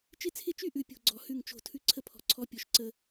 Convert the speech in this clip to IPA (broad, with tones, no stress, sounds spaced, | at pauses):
t͡ʃ ɪ˦ t͡sʰ ɪ˦ t͡ʃ y˦ ʔ ʉ˦ pʲ o̤˦ ɡ͡ǀ ɔ˨ h ʉ˦˨ ŋ t͡ʃ o̤˦˨ tʰ ʉ˦ ǀʰ ə˦ pʰ ɔ̤˨ ǀʰ ɔ˦ pʲ ɔ˨ ʃ ǀ ə˦